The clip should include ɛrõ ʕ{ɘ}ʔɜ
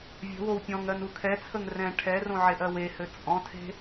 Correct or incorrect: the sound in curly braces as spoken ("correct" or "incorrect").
incorrect